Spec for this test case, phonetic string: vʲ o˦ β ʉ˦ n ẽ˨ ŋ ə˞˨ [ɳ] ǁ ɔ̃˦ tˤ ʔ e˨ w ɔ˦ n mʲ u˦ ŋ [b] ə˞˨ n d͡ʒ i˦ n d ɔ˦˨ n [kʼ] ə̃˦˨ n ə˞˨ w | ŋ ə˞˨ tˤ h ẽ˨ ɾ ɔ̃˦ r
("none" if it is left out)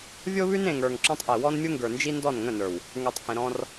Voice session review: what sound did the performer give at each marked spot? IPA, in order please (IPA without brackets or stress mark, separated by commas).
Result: ŋ, ɡ, ŋ